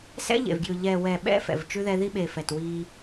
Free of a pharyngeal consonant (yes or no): yes